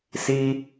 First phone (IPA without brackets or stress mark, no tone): s